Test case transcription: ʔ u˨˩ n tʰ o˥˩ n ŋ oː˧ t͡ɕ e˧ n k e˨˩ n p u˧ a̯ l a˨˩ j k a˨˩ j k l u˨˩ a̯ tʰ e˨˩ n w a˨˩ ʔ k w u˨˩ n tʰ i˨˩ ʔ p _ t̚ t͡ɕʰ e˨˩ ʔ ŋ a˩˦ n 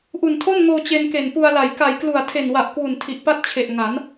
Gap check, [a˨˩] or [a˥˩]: a˥˩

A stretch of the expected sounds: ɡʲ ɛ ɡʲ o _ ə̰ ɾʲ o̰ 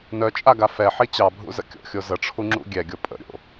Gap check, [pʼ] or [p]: pʼ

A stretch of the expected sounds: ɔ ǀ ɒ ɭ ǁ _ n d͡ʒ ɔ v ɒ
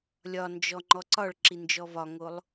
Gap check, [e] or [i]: i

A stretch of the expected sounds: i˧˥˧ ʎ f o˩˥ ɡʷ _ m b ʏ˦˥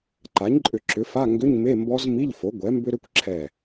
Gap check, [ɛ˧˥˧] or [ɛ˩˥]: ɛ˩˥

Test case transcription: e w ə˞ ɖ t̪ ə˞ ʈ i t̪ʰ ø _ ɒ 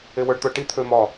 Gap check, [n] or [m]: m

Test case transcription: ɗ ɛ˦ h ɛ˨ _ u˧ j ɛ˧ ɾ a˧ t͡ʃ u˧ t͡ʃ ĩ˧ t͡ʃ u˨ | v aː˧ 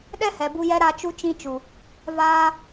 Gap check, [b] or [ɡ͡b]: b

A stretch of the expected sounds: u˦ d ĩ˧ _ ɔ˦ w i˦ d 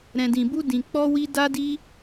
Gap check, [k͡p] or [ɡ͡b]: k͡p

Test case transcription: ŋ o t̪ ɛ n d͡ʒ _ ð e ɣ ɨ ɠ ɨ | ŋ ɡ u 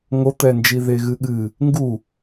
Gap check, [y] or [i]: i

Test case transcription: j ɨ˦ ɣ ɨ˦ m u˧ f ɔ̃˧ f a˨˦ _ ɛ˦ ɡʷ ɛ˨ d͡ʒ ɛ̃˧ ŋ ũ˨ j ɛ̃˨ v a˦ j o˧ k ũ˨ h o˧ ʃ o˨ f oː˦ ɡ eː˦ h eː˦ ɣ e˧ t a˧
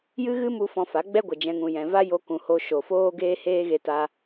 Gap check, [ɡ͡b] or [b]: ɡ͡b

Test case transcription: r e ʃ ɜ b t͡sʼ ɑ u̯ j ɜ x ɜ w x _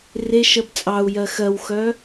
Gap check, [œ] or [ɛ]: œ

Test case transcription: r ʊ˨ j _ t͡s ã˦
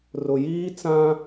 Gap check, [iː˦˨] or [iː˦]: iː˦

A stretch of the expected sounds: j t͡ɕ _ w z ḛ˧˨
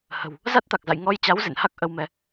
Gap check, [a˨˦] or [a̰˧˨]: a˨˦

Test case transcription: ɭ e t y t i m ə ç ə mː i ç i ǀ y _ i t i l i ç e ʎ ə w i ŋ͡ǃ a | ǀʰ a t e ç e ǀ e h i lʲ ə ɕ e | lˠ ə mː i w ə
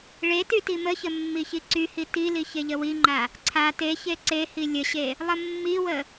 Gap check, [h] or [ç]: h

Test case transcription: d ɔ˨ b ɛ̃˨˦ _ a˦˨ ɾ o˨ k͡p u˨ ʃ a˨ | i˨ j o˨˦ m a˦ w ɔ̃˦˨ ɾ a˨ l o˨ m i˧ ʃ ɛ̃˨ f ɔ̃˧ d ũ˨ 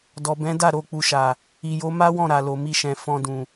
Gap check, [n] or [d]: d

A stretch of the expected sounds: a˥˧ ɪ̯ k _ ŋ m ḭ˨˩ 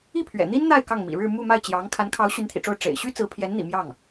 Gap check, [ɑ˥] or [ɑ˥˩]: ɑ˥˩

